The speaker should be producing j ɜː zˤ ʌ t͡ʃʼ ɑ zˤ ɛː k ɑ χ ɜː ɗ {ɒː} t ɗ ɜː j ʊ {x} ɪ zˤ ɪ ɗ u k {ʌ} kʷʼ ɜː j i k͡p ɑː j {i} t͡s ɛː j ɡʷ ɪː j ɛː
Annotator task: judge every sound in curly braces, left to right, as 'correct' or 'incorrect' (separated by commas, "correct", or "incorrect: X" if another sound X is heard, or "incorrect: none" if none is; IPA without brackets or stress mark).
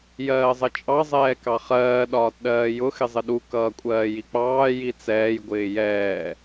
correct, correct, incorrect: ʌː, correct